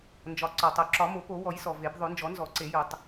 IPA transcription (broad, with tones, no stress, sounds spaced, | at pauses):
n d͡ʒ ɒ˩ ǀ ɒ˩ tˤ o˩ ǁ ɒ˨˩˦ m o˨˩˦ p o˨˩˦ w ɔ˨˩˦ j s ɔ˩ v e˨˩˦ b ðˤ o˨˩˦ n d͡ʒ ɔ˨˩˦ n z ɔ˨˩˦ ǀ e˨˩˦ j o˨˩˦ tˤ